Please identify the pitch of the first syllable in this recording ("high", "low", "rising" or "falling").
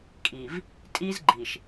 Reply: low